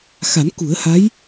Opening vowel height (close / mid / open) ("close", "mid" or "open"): open